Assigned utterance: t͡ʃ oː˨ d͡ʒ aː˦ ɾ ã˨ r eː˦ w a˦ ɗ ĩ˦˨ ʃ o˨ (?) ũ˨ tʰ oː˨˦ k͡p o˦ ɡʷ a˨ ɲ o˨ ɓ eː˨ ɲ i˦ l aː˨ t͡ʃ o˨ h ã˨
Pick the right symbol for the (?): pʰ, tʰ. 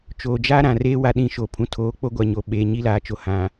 pʰ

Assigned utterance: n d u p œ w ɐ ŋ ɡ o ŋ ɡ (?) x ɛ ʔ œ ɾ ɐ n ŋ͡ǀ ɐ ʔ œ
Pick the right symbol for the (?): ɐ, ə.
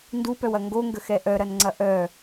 ə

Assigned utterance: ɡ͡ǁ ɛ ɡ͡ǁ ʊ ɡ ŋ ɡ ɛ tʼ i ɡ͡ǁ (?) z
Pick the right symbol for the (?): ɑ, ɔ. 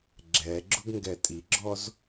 ɔ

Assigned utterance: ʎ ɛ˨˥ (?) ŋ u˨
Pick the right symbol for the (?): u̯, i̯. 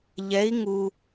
i̯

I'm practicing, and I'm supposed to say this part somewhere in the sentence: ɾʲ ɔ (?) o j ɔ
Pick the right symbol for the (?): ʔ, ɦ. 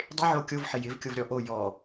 ʔ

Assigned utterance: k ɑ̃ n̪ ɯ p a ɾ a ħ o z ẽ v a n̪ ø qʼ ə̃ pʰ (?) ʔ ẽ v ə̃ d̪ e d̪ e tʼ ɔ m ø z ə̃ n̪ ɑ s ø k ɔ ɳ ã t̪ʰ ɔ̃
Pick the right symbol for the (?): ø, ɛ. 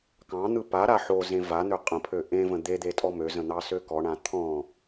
ø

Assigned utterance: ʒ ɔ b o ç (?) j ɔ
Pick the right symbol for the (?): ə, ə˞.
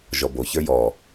ə˞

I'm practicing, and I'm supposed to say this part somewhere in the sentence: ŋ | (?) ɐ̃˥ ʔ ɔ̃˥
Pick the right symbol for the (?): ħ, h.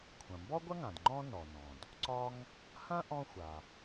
h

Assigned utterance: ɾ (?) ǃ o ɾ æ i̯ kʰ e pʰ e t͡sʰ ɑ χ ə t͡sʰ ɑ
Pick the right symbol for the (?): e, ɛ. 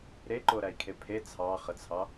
e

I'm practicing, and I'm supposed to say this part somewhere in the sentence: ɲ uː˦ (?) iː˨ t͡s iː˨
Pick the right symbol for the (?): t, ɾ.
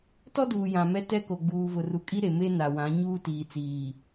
t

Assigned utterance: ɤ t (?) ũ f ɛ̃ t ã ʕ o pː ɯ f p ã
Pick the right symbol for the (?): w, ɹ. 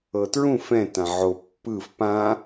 ɹ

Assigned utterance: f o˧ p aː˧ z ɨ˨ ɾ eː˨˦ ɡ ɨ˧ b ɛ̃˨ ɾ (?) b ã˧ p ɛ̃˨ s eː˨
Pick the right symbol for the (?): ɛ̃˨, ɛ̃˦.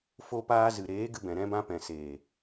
ɛ̃˦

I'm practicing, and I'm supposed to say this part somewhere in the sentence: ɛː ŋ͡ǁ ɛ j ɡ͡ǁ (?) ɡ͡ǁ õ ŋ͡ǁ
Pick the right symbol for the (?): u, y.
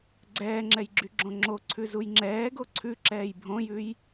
y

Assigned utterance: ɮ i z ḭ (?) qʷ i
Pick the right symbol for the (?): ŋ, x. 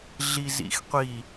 x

